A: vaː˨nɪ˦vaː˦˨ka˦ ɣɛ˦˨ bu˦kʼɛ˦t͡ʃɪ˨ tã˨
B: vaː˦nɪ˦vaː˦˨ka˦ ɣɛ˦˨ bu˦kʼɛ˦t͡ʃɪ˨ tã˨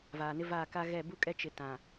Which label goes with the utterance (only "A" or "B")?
A